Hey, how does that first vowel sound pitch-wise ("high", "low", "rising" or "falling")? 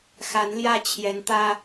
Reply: rising